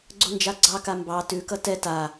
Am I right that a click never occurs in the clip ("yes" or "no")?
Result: no